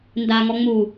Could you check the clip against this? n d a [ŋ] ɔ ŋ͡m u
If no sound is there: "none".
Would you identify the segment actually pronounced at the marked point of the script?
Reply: ŋ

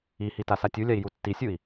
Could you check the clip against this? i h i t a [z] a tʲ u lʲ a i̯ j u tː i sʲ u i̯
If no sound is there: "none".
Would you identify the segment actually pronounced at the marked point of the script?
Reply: s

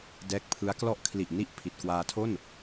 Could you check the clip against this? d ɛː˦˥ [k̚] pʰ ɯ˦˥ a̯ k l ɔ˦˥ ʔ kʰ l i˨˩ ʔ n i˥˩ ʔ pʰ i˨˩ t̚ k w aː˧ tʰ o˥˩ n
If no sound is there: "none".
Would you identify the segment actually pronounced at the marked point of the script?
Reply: k̚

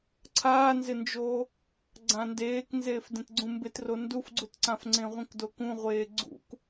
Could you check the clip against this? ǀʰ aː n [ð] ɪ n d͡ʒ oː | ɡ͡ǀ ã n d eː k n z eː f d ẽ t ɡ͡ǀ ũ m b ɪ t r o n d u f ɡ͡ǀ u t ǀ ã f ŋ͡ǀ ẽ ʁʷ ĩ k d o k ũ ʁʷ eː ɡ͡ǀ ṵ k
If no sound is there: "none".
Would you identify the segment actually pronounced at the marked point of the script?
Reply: z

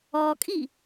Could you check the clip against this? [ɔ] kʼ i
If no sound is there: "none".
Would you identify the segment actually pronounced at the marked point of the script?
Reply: ɔ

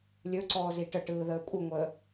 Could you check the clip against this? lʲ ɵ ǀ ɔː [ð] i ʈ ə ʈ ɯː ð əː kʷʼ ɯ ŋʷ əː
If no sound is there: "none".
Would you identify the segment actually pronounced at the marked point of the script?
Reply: z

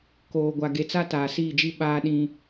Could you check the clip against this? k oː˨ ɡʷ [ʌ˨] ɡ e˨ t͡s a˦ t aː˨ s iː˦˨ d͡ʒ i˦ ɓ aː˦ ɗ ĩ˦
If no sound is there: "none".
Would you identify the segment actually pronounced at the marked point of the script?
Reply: a˨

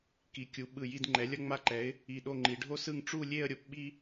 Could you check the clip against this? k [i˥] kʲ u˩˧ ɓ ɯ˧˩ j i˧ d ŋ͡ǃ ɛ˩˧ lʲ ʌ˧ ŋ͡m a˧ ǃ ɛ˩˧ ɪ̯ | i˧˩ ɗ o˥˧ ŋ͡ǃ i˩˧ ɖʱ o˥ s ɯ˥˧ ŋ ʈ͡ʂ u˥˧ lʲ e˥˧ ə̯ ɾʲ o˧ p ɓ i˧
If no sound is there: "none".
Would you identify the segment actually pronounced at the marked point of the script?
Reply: i˩˧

